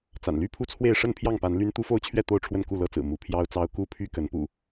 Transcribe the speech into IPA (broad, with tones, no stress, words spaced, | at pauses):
t͡sa̰˨˩nly˦pʰu˥˨t͡sʰwe˥˨ɪ̯ ʂə˥˨npʰjɑ˥˨ŋpa˨˦n ly˦n t̪u˦fo˦ʊ̯t͡ɕʰɥɛ˥˨ t̪o˥˨ʊ̯ʈ͡ʂʰwə˥˨n ku˥˨lɤ˦t͡sɹ̩˨˩ mu˨˦ pʰjɑ˦ʊ̯t͡sɑ˦ʊ̯ ku˥˨pʰy˦ kə˨˦npṵ˨˩